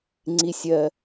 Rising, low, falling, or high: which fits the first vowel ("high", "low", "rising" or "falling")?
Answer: high